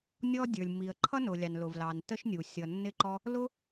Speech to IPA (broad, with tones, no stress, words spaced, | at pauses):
nʲɔ˥dʲə˞˩lʲ mi˩ə̯ǃʰʌ˥nʊ˩ lʲɑ˩nlʊ˩vlɑ˩n tə˥ʃnʲu˩ sʲʌ˩nːɪ˥ǃɔ˥ | lʊ˥